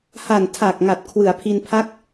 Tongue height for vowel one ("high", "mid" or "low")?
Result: low